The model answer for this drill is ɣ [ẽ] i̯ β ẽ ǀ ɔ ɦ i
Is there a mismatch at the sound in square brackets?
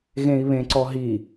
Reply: no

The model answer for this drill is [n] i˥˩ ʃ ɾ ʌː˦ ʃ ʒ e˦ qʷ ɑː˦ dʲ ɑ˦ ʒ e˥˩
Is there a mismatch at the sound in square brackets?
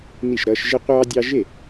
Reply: no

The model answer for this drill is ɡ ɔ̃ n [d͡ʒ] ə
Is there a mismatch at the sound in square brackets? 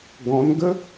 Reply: yes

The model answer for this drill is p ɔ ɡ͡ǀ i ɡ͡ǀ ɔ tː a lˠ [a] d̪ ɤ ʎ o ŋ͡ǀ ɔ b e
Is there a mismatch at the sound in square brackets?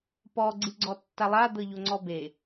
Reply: no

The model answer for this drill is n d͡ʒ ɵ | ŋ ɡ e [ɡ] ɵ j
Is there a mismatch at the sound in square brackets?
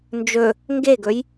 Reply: no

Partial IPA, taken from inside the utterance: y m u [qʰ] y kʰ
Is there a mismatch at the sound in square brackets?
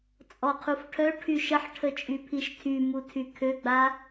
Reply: yes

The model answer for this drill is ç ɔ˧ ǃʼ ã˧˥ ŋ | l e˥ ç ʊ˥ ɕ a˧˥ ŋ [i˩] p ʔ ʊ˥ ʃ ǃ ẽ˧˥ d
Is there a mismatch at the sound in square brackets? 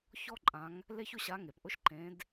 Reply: yes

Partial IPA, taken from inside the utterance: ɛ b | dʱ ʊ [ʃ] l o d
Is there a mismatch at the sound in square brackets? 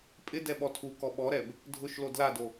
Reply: no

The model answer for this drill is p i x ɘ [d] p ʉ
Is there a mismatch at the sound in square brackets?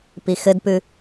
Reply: no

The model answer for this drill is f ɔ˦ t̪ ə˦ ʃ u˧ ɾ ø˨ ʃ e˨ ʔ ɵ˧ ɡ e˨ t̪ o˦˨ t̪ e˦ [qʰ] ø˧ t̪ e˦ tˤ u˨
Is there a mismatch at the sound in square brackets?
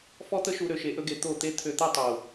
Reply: yes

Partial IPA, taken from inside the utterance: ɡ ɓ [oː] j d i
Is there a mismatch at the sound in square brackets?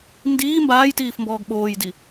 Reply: no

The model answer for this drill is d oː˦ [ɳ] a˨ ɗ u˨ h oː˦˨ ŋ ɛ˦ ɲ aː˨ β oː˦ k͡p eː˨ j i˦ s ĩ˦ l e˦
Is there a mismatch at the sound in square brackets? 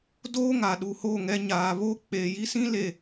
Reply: yes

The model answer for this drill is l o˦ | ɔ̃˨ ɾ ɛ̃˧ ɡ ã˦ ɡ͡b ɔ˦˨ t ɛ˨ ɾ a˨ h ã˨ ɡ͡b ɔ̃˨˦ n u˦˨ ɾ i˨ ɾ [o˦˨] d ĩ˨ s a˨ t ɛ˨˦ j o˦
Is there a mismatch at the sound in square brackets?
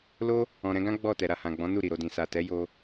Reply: yes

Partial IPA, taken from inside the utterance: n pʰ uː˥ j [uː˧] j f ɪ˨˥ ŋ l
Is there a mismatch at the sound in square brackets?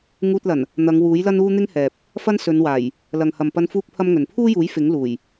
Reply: yes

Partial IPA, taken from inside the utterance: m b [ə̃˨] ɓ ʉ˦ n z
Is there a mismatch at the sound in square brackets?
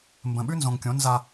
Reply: no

